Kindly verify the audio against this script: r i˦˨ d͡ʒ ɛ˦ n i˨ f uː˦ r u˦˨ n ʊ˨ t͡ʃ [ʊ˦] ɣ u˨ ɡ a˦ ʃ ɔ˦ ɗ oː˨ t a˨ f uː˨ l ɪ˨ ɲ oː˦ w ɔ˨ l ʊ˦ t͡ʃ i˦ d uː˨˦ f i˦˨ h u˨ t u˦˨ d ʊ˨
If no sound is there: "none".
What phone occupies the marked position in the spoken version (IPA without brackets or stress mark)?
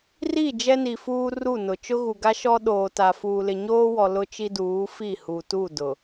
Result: ʊ˦